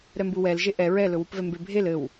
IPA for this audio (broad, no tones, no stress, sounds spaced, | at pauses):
ɾ ɛ m b u w ɛ l ʒ e ʔ ɛ ɹ ɛ l ɵ w u p v ɛ m b e bʱ e l ɘ w